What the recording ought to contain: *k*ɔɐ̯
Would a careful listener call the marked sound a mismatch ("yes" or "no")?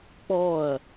yes